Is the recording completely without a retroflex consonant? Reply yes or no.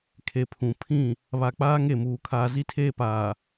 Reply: yes